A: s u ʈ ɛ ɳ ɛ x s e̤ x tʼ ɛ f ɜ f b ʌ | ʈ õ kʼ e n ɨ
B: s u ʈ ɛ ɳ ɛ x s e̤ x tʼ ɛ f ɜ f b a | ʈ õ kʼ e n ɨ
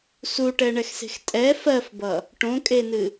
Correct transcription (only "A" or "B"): A